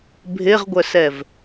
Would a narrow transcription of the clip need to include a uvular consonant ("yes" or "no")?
yes